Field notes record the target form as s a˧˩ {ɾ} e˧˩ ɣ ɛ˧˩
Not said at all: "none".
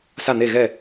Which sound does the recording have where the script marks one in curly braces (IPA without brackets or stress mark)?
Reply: n̪